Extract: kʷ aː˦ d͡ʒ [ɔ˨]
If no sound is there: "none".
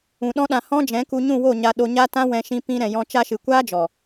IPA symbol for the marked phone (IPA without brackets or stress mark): ɔ˨